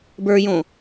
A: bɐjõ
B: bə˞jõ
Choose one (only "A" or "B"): B